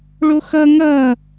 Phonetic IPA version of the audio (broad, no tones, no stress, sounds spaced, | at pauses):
ɭ o x ʌ ŋ ʌ